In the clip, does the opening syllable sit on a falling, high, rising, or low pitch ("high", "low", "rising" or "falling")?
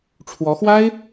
rising